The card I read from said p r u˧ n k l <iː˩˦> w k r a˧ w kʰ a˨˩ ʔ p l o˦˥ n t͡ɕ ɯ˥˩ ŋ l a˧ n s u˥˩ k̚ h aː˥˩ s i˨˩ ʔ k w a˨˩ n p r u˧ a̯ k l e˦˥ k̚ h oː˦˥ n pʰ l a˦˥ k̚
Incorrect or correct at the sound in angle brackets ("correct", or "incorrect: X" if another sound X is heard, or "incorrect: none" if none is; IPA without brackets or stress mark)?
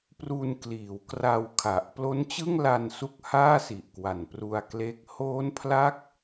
correct